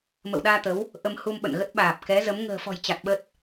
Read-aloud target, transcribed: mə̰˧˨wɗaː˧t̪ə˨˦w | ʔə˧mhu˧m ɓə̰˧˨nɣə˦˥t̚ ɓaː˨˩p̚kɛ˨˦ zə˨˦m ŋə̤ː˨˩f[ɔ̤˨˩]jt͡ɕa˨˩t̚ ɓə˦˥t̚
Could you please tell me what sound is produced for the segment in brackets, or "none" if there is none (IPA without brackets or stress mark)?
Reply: ɔ̤˨˩